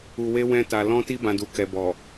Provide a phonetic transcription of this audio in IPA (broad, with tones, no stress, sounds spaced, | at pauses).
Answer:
u˧ w e˦ w ɛ̃˦ t a˧ l ɔ̃˧ t i˧ b ã˦ d u˧ k ɛ˧ b ɔ˨